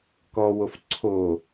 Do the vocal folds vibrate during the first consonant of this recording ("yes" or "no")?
no